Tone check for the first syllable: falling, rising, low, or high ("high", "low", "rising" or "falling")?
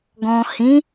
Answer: low